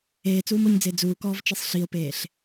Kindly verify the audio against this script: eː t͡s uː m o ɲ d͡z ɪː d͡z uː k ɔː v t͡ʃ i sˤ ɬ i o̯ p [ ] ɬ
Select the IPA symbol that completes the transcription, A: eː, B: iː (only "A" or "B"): A